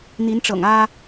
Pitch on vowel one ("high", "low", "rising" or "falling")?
rising